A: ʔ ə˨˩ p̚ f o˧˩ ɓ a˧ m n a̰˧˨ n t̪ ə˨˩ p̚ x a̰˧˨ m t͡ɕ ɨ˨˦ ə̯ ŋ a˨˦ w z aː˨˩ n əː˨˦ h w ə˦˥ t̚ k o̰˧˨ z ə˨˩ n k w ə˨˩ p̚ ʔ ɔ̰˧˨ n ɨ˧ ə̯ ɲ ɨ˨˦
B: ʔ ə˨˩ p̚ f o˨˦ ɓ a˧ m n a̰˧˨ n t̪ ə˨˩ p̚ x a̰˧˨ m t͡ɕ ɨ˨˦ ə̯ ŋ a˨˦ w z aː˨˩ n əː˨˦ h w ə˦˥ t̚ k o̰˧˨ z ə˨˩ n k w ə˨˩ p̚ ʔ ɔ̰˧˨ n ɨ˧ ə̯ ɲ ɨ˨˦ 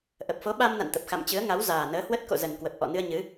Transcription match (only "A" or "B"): B